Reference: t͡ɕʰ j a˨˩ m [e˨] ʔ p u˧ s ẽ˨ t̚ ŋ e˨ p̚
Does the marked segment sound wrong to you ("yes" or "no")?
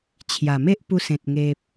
yes